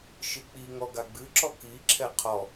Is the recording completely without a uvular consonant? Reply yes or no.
no